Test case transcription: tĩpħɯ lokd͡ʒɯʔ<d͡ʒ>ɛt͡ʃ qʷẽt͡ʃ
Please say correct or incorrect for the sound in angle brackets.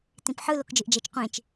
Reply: correct